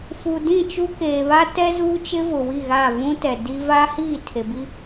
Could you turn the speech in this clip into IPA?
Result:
f u˨ d ĩ˦˨ t͡ʃ u˦ k eː˨ β a˦ t ɛ˦ z uː˦ t͡ʃ ɪ˦ v ʊ˨ w i˦˨ ɣ a˦˨ v ũ˦ t ɛ˨ d i˦ v a˦ h iː˦˨ tʰ e˨ b i˦

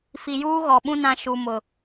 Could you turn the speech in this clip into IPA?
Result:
f i˨ j uː˦ ɣ ɔ˨ ɓ ũ˦ n ã˦ ʃ u˨ m ʊ˨

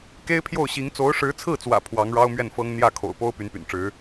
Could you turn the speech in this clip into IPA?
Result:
k e˥ ɪ̯ pʰ j o˥˩ ʊ̯ ɕ i˧˥ ŋ t͡s o˧˥ ʊ̯ ʂ ɻ̩˧˥ t͡sʰ ɹ̩˥˩ t͡s w ä̰˨˩ pʰ w ɑ˧˥ ŋ ɻ ɑ˥ ʊ̯ m ɥ ɛ˥˩ n f ɤ˥ ŋ n̪ j ä˥˩ kʰ o̰˨˩ ʊ̯ p o˥ ʊ̯ p y˧˥ n p y̰˨˩ n ʈ͡ʂ ɻ̩˧˥

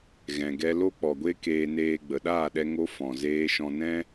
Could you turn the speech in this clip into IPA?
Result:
ɣ ɛ̃˨ ɡ ɛ˧ l o˦ k͡p ɔ˨ ɡʷ e˦ k eː˧ n eː˧ ɡ͡b ə˨ ɗ aː˦˨ ɗ ɛ˧ ŋ o˦ f ɔ̃˨ z eː˧ ʃ ɔ̃˧ n ɛ̃˦

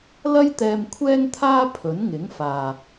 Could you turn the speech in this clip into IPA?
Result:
l ɐ˥ j t̪ ɛː˧ m kʷʰ ɛː˥ ŋ t̪ʰ aː˥ pʰ ɵ˨˥ n ŋ ɪ˨˥ ŋ f aː˨

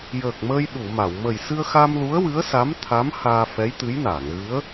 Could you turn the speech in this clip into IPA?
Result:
j əː˨˩ k̚ m əː˧ j ɗ u˨˩˨ m a˨˩˨ w m ə˨˩ j s ɨ˧ ə̯ x a˧ m l u˧˥ ə̯ w ɨ˧˥ ə̯ s a˧˥ m t̪ʰ a˧˥ m h aː˧ f ɛ˧˥ j t̪ ɨ˧˥ j n aː˨˩˨ ŋ ɣ ɨ˧˥ ə̯

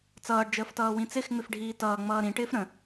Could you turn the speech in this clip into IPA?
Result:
t͡s ʌː ɖ d͡ʒ əː f t ʌː w ĩ t͡s ɪ x ŋ͡m ɪ f ɖʱ iː t ʌː ŋ͡m ʌː ɾ ĩ ʈ ɪː f ɾ ə̃

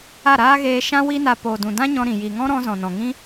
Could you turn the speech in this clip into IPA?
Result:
a˦˨ ɾ aː˦ ɣ eː˧ ʃ ã˦ w i˦ n a˧ p o˨ d ũ˨ d ã˦ ɲ ɔ̃˧ ɾ ĩ˨ j i˨ ŋ ɔ̃˦ ɾ ɔ̃˧ z ɔ̃˨ n ɔ̃˨ ŋ ĩ˦

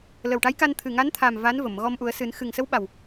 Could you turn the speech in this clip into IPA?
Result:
l ə˨˩ w ʈ a˧˥ j k a˧ n t̪ʰ ɨ˨˩ ŋ a˧˥ n t̪ʰ a˨˩ m v a˧˥ n v ə˨˩˨ m ɣ ɔ˧ m ʔ u˨˩˦ ə̯ s ɨ˨˩˦ n x ɨ˨˩ ŋ s ə˧˥ w ɓ a˨˩ w

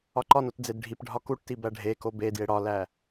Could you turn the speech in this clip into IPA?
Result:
ɒ ǃ ɒ n o t d͡z e d ɖʱ i p ɖʱ ɒ k u ʈ t i b æ ɖʱ e k o b e d j e ɽ ɒ l æ

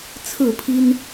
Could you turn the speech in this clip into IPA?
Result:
t͡sʰ ɹ̩˥˨ pʰ i˦ n

